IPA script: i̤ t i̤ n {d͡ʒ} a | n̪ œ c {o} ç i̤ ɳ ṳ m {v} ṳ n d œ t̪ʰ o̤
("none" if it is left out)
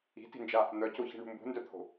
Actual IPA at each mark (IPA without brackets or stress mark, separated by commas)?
d͡ʒ, o, b